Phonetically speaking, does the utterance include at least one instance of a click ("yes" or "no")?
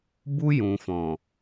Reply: no